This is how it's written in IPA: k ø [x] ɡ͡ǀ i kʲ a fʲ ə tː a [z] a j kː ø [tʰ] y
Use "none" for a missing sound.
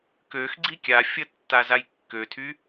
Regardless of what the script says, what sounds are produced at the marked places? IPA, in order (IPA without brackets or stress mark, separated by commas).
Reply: x, z, tʰ